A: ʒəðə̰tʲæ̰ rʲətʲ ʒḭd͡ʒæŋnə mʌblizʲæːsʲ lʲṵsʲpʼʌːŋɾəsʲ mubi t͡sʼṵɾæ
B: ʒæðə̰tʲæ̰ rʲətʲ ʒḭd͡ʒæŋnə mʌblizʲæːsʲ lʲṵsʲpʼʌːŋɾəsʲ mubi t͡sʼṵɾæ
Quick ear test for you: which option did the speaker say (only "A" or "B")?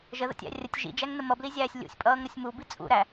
A